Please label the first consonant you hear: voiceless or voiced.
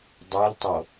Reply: voiced